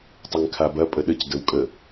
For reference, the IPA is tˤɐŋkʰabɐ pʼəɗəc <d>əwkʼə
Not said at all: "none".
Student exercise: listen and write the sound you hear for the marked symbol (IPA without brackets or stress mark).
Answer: d